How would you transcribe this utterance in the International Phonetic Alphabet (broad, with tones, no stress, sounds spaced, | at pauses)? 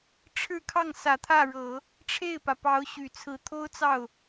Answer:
ʈ͡ʂʰ ɻ̩˥˧ kʰ ɑ˥˩ ŋ s ä˨˩ t̪ʰ ä˥˩ ɻ ɤ˨˩˦ | ʈ͡ʂʰ e˥˩ ɪ̯ p ä˩ p ɑ˧˥ ʊ̯ ɕ y˨˩ t͡sʰ ɹ̩˧˥ t̪ʰ o˥ ʊ̯ t͡s ɑ˥˩ ʊ̯